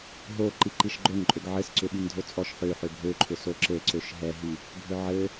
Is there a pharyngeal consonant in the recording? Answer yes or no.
yes